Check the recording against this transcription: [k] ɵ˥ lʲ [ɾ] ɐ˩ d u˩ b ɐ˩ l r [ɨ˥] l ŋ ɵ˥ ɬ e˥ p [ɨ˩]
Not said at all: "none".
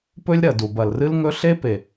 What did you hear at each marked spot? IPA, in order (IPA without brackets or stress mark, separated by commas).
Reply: p, ɾ, ɨ˥, e˩